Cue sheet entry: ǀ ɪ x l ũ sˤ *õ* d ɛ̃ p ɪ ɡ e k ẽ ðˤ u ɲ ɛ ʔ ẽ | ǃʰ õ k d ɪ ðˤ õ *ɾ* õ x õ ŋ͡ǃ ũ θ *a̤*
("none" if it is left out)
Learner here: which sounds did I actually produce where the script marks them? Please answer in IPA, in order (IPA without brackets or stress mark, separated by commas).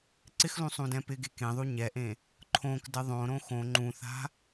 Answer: ũ, ɾ, a̤